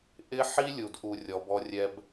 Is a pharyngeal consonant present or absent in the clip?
present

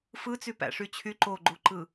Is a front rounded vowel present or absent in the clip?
present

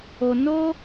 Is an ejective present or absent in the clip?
absent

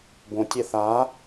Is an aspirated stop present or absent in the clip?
absent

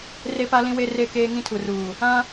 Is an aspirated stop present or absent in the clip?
present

